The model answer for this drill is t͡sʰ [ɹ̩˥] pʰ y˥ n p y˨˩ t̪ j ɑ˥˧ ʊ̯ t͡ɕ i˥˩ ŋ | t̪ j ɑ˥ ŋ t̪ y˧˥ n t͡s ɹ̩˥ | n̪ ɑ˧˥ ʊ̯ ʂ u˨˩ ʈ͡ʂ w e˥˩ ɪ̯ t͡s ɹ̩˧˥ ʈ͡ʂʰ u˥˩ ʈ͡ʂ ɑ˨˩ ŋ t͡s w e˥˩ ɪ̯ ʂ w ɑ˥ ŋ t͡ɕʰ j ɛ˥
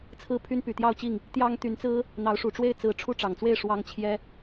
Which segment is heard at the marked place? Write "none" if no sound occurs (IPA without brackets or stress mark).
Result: ɹ̩˥˩